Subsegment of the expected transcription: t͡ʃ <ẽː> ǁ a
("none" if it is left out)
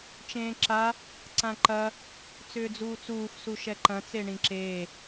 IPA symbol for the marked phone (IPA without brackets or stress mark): ẽː